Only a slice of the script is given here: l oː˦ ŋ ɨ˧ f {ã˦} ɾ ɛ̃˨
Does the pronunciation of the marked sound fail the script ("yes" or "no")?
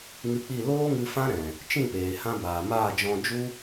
no